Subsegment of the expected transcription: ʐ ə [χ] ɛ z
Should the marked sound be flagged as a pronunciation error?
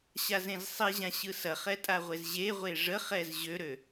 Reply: no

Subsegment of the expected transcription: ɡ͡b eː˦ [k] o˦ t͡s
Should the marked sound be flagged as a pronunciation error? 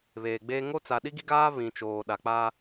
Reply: yes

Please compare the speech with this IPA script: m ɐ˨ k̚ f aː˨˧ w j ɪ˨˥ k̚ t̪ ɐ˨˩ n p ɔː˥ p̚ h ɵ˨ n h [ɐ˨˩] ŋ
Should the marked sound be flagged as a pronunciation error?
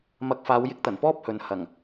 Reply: no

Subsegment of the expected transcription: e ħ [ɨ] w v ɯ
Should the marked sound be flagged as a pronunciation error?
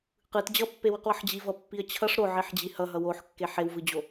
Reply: yes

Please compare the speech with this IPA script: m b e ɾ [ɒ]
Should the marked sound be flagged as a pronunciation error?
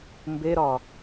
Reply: no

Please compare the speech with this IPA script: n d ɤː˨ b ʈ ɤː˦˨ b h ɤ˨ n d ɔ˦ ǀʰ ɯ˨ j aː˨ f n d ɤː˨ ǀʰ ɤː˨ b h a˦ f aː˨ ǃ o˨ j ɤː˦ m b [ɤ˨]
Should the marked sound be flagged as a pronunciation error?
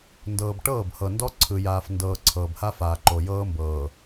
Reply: yes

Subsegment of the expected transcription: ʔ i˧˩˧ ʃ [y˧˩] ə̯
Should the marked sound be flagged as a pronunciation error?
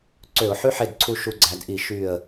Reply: no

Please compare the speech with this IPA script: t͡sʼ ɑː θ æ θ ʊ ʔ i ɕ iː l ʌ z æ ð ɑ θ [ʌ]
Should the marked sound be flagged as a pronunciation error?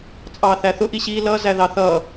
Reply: yes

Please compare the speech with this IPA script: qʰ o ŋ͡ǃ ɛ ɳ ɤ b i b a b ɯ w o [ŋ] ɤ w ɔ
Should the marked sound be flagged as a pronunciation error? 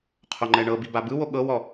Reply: yes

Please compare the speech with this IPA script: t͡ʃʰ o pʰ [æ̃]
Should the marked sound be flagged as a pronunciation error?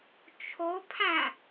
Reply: no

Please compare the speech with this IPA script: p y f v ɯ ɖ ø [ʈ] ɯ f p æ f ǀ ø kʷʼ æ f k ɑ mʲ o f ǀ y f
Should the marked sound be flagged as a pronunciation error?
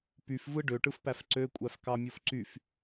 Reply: no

